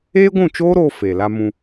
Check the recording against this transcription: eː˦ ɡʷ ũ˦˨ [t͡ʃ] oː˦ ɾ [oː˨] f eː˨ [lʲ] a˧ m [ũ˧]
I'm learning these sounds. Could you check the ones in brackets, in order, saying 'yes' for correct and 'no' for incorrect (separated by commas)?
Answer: yes, no, no, yes